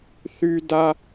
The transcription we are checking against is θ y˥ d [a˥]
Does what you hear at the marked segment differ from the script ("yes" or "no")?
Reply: no